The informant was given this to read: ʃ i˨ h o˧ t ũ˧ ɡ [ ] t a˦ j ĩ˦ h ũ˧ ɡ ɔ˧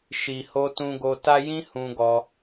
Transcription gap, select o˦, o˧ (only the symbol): o˧